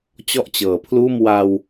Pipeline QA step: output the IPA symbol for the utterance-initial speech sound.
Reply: t͡ɕ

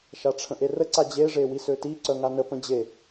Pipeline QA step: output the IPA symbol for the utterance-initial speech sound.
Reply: ʃ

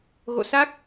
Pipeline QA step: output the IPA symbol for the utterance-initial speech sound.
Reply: ɣ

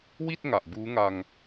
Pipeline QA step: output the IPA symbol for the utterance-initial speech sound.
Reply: w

